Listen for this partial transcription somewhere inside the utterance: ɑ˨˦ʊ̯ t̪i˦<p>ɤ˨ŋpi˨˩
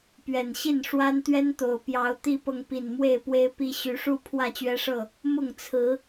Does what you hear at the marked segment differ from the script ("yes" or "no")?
no